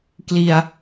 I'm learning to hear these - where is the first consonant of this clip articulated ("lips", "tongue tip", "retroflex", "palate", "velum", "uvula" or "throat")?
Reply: velum